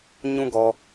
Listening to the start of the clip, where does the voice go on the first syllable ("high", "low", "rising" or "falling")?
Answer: high